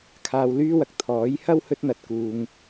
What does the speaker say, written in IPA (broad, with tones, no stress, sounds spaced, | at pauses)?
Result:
kʰ aː˧ w l yː˥ w ɐ˨ k̚ t̪ʰ ɔː˨˥ j h ɐ˥ w h ɵ˥ t̚ n̪ ɐ˧ t̚ k uː˧ ŋ